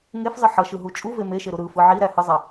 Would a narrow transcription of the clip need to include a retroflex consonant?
no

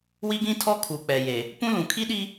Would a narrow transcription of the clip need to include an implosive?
yes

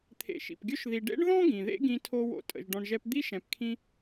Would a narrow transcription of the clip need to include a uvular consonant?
no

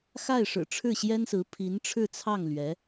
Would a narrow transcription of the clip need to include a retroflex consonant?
yes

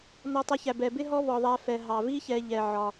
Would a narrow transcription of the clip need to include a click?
no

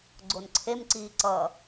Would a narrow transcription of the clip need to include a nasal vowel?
no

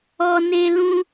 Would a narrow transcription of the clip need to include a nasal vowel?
yes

